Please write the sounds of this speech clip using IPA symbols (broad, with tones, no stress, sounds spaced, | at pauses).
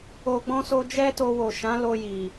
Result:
o˨ ɡ͡b ɔ̃˧ s o˧ d͡ʒ ɛ˦ t o˧ w o˨ ʃ ã˨˦ l o˧ j i˨